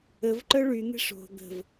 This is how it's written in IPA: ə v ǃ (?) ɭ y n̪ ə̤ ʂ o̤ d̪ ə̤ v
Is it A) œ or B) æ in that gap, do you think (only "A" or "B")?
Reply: A